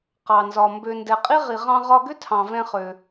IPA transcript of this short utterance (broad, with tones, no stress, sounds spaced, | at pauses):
q ɑ˩ n z ɒ˩ m b ø˩ n d ɛ˩ qʼ i˥ ʁ i˩ ʁ ɑ̃˧ ʁ ɒ˧ ɡ ʏ˥ tʰ ɑ̃˩ v ɛ̃˧ χ ø˩